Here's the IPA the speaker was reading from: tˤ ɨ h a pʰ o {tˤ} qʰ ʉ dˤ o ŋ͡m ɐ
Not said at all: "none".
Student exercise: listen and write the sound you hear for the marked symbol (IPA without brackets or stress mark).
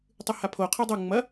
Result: none